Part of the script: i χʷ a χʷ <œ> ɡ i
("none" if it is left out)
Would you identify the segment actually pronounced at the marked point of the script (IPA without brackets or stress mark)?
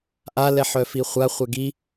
ɛ